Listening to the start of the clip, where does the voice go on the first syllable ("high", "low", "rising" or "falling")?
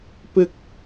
high